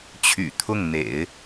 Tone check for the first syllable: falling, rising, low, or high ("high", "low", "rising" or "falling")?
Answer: low